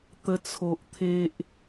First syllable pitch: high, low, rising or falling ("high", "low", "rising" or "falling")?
high